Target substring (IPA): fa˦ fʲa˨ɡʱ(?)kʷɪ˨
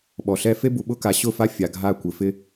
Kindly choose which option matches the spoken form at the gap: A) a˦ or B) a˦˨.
B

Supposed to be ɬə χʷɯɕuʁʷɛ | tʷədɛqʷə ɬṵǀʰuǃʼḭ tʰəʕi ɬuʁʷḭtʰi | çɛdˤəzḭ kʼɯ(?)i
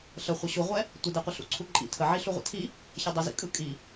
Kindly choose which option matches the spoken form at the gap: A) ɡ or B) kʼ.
B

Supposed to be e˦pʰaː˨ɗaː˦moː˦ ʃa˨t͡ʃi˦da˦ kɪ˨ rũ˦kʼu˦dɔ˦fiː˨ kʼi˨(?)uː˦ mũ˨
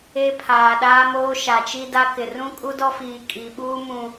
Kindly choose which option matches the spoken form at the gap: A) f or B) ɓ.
B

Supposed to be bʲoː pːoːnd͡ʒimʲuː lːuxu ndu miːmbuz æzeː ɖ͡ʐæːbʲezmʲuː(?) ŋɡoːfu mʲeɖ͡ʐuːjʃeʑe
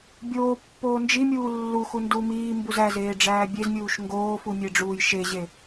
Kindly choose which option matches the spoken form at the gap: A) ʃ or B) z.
A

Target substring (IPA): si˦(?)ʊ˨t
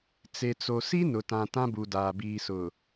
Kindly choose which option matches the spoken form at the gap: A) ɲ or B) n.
B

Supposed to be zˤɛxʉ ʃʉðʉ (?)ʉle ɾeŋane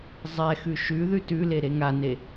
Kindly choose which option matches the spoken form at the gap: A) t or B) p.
A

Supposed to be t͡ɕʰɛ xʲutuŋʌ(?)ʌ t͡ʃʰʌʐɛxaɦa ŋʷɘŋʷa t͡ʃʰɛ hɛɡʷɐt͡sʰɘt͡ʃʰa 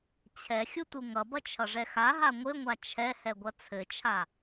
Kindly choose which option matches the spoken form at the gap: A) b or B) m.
A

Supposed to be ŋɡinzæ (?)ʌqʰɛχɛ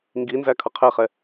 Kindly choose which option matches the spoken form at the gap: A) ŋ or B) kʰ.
B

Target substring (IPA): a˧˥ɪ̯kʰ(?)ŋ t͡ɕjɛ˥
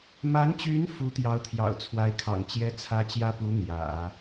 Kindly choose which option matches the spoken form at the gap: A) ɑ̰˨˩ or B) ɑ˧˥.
A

